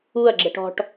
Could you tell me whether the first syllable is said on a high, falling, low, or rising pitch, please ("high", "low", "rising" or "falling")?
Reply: falling